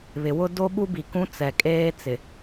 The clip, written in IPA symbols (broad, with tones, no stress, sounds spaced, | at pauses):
β ɪ˨ w ʊ˦ d o˦ ɓ u˦ b i˨ k ũ˦ t͡s ɛ˨ kʼ eː˦ t͡s ɪ˨